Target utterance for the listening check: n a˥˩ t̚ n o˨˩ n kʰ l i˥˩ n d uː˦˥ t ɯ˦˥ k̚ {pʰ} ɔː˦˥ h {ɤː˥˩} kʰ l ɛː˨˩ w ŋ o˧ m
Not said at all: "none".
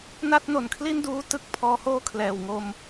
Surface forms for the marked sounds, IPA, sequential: pʰ, oː˥˩

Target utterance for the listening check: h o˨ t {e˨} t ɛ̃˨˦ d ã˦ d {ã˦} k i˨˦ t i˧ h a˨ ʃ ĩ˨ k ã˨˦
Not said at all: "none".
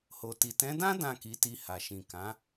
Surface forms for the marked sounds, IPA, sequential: i˨, ã˦˨

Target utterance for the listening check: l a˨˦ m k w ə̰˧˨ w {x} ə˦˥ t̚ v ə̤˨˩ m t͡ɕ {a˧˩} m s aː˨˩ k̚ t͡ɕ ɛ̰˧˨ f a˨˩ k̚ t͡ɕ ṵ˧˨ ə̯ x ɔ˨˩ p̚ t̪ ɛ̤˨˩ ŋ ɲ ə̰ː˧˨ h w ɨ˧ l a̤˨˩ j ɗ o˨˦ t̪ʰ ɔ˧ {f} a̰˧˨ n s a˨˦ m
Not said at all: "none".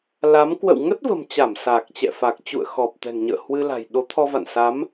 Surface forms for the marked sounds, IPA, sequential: ŋ, a˧˩, v

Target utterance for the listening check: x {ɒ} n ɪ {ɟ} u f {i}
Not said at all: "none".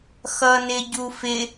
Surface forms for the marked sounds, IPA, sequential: ʌ, ɟ, ɪ

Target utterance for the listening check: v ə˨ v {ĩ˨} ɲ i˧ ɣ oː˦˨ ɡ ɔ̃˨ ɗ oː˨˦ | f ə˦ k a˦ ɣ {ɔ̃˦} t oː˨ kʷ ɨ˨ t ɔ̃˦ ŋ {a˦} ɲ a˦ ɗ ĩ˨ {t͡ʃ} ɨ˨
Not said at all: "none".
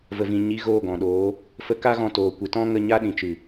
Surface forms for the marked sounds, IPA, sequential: ĩ˨, ɔ̃˧, ə˦, t͡ʃ

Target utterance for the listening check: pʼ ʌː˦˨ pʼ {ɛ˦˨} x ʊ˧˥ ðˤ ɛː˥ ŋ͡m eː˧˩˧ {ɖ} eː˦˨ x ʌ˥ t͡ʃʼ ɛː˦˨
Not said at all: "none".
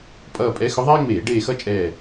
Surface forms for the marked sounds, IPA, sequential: ɛ˧˥, ɖ

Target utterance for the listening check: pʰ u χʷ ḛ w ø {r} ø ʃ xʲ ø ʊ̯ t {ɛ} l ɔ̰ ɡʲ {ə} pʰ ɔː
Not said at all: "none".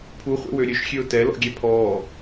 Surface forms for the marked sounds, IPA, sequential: ɾʲ, ɛ, ɛ

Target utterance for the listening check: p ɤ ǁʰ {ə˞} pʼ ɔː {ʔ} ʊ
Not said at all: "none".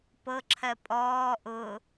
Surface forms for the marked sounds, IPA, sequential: ɜ, ʔ

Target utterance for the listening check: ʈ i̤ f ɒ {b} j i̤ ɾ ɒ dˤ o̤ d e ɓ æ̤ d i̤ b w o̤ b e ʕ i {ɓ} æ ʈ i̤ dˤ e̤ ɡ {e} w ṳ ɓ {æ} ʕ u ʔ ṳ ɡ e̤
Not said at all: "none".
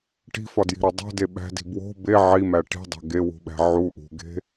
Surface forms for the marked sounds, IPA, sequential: d, m, e, æ̤

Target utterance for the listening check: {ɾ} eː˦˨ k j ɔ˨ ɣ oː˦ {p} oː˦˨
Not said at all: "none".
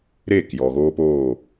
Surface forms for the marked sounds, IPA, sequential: ɾ, p

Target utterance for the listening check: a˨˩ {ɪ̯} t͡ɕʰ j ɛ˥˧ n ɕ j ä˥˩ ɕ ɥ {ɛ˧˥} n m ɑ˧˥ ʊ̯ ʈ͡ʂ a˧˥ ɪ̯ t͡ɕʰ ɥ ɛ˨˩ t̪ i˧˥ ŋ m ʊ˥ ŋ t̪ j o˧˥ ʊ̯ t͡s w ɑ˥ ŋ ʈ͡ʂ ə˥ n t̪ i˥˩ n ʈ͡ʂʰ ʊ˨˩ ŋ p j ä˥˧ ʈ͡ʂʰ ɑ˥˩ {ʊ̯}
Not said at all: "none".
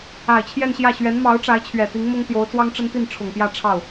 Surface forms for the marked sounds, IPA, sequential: ɪ̯, ɛ˧˥, ʊ̯

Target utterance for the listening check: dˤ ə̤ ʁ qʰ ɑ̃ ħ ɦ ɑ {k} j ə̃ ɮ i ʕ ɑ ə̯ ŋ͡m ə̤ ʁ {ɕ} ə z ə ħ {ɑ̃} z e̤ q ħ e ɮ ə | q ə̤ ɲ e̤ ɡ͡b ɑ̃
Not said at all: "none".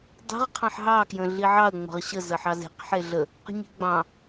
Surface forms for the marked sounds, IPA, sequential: k, ɕ, ɑ

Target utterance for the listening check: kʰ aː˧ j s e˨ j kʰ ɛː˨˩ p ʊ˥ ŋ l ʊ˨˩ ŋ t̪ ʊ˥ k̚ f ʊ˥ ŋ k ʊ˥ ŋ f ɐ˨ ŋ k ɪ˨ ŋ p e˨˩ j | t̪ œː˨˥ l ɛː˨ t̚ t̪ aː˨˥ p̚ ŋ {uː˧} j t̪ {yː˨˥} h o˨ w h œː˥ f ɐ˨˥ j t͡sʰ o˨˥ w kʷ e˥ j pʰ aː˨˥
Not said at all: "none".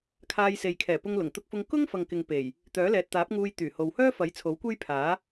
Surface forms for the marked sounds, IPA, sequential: uː˧, yː˨˩

